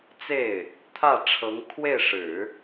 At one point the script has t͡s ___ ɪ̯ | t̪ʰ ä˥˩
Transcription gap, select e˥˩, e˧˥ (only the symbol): e˥˩